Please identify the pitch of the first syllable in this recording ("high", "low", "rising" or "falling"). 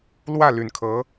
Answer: falling